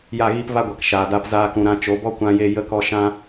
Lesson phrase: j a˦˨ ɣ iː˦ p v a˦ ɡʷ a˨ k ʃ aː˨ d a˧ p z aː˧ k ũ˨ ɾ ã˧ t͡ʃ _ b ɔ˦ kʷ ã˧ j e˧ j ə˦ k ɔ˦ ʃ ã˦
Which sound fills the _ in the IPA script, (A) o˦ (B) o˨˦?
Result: B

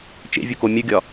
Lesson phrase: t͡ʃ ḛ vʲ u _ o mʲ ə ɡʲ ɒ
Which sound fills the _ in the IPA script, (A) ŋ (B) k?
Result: B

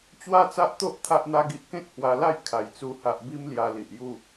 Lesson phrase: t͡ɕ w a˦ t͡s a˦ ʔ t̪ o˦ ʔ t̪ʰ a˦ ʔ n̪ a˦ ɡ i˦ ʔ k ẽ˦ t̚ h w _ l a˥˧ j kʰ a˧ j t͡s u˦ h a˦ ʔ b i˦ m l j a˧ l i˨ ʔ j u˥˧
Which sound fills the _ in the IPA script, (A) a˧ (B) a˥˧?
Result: A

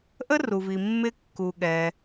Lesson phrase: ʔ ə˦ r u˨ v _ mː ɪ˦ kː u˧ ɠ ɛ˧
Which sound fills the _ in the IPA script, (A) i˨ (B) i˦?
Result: A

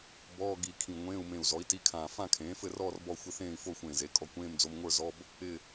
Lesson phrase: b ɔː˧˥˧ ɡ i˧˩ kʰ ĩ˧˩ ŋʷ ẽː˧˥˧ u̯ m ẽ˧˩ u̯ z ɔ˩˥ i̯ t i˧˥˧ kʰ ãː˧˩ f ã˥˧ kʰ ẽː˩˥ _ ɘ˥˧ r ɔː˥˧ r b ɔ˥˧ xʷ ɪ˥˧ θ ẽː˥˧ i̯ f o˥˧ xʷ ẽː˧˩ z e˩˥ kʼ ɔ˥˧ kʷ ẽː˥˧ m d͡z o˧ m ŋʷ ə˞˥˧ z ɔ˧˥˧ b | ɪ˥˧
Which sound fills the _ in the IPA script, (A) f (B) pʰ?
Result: A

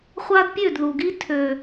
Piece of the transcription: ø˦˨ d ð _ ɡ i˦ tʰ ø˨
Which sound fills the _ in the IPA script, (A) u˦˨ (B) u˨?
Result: B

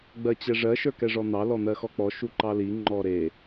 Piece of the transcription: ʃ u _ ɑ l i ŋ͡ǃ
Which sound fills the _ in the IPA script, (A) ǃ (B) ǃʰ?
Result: A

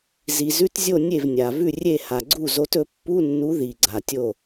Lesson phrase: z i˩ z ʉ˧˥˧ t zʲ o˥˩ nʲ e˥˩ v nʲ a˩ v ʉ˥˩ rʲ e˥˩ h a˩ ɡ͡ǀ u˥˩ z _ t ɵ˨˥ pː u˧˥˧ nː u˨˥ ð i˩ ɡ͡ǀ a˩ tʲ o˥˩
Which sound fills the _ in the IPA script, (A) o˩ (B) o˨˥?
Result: B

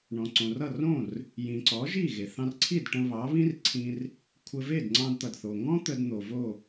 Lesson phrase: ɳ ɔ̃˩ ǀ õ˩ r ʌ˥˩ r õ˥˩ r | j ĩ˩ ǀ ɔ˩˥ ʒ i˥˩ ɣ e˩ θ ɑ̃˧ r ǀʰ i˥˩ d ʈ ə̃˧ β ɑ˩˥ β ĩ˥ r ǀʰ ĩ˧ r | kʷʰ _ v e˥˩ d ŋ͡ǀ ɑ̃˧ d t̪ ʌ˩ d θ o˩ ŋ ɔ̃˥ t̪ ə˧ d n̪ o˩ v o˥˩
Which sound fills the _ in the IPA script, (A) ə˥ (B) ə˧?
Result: B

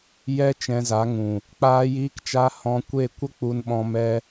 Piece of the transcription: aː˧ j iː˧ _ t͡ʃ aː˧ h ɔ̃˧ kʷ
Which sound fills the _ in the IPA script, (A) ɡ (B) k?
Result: B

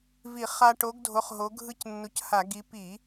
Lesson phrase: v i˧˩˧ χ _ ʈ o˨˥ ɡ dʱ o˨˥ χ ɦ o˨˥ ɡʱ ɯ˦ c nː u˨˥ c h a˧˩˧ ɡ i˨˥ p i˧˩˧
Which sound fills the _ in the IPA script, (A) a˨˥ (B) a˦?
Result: B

